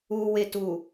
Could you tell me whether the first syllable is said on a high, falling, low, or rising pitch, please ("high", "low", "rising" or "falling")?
low